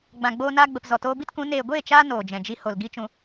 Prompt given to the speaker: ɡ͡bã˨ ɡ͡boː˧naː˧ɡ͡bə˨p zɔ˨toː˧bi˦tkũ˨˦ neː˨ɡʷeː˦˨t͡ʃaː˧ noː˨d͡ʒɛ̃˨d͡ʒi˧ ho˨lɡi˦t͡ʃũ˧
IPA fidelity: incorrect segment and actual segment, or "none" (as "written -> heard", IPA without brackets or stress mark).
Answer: none